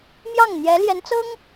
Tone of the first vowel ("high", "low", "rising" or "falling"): falling